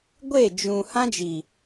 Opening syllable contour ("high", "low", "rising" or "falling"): falling